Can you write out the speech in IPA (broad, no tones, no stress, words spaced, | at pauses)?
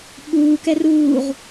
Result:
ɓuːkɛ ruːʁ